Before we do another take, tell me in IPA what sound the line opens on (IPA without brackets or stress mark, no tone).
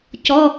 c